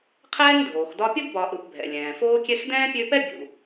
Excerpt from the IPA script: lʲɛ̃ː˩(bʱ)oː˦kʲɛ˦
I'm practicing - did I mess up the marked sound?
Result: yes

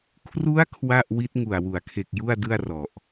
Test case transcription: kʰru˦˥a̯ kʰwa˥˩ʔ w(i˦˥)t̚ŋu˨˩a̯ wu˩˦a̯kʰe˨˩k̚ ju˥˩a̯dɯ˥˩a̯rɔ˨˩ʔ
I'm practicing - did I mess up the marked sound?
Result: no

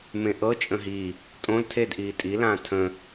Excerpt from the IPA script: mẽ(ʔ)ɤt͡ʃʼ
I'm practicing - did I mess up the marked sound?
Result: no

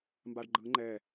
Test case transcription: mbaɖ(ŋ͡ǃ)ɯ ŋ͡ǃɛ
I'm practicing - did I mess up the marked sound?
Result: yes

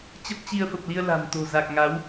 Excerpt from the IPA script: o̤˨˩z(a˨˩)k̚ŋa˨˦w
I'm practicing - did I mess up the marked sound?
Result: no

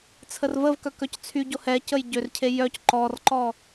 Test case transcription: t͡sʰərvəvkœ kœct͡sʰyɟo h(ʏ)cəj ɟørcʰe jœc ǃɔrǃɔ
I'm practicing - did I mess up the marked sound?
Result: yes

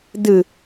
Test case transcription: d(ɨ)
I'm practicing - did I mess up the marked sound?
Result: no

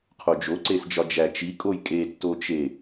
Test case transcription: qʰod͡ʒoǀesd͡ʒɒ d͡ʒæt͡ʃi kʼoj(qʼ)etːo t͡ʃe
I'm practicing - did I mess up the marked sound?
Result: yes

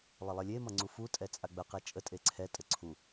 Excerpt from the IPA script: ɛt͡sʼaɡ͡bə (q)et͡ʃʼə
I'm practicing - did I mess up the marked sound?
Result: no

